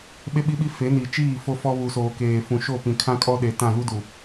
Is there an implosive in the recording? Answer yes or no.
yes